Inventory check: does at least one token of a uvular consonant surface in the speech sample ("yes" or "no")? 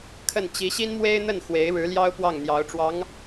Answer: no